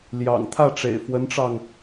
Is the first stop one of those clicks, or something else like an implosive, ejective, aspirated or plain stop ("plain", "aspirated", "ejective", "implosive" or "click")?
aspirated